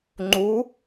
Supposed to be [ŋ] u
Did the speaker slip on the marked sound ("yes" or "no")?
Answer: yes